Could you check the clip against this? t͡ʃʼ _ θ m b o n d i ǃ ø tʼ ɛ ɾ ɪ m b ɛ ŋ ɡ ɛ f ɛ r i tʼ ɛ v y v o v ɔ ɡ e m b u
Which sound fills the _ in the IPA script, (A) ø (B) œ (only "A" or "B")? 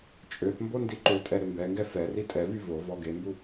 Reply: A